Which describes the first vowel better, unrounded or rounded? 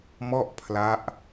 rounded